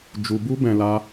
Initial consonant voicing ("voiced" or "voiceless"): voiced